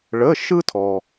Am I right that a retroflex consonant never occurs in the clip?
no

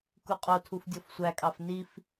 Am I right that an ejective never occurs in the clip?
no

